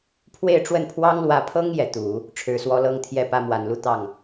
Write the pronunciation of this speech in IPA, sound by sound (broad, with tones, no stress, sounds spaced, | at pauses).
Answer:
pʰ w e˥˧ ɪ̯ ʈ͡ʂ w ə˥˩ n pʰ w ɑ˥ ŋ l w ä˧˥ pʰ ɤ˥ ŋ j ɛ˧˥ t̪ u˨˩˦ | ʈ͡ʂʰ ɻ̩˨˩ s w ɔ˧˥ l ɤ˥ ŋ t̪ʰ j ɛ˥˩ p ä˥ m w a˨˩ n l u˥˧ t̪ ɑ˥˩ ŋ